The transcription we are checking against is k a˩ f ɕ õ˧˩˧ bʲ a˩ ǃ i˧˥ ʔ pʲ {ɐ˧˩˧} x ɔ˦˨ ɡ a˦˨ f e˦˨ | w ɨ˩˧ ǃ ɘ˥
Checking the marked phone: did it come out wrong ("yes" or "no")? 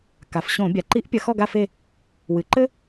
no